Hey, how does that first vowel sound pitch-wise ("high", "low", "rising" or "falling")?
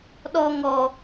high